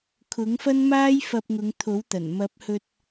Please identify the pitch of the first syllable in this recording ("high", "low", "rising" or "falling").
rising